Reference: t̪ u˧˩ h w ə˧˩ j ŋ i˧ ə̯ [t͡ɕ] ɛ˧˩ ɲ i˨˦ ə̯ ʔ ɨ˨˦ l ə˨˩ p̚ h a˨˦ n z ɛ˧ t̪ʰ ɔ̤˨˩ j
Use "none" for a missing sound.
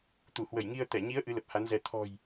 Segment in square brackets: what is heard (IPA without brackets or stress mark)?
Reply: t̪